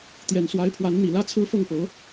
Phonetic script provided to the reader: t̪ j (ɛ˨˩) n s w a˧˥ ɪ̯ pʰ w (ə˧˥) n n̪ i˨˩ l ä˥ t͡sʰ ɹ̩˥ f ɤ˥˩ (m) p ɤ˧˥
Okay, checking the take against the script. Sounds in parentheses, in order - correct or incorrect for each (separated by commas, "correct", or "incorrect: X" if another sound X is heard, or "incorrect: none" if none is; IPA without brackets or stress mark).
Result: correct, incorrect: a˧˥, incorrect: ŋ